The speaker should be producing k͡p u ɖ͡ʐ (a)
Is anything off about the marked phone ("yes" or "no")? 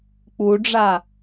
no